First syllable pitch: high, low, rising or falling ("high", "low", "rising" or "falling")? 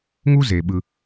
high